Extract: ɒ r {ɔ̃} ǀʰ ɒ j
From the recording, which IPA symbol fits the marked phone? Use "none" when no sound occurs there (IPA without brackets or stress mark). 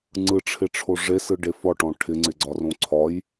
õ